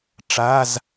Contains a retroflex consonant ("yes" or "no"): yes